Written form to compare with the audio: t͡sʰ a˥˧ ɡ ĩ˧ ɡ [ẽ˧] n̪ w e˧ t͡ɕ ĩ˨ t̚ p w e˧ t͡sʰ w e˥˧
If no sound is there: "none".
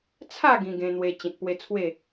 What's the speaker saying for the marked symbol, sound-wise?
ẽ˧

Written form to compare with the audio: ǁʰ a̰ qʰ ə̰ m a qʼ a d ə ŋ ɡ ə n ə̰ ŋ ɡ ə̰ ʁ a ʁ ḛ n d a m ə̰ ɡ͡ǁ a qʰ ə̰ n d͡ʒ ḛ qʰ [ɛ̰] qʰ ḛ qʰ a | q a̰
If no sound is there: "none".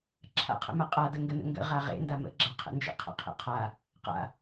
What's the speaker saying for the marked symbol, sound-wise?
ə̰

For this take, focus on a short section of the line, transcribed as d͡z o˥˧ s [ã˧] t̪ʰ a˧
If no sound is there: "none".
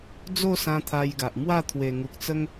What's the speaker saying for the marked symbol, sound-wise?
ã˧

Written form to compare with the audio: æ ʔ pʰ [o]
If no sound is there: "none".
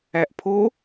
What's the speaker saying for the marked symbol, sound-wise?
o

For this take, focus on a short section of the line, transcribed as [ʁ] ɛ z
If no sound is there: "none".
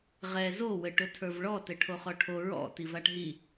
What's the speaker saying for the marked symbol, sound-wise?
ʁ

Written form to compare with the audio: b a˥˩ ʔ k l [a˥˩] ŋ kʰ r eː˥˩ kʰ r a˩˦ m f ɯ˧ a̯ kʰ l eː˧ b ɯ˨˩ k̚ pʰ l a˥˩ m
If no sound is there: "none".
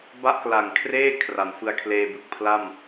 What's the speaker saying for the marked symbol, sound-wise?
a˨˩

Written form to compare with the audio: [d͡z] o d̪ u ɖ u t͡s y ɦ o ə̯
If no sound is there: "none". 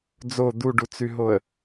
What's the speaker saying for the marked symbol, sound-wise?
d͡z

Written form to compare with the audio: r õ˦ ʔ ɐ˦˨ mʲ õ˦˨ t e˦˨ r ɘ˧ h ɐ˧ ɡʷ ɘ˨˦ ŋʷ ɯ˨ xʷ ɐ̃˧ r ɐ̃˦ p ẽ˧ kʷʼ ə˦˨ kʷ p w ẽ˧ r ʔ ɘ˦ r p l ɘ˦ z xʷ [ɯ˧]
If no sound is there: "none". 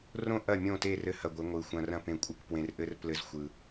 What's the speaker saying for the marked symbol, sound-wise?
ɯ˧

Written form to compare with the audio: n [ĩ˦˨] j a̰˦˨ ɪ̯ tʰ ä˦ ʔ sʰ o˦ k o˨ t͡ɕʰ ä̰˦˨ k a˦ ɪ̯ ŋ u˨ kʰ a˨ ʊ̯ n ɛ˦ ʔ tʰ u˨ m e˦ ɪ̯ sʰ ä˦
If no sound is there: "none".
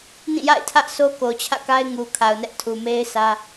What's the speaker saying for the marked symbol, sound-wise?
ĩ˦˨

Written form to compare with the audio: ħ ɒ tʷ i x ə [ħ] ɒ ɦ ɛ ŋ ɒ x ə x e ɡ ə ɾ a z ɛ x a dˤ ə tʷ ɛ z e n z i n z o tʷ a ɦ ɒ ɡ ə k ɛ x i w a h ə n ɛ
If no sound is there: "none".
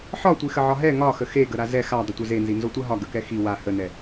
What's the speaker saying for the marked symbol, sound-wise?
ʕ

